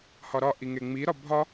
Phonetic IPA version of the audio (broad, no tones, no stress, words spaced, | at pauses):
hɒɾɒ ʔiŋeŋ͡mi ɾɒbʱɒ